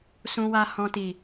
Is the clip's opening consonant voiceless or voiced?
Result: voiceless